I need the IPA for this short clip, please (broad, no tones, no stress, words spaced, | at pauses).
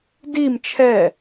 dim t͡ʃʰɛ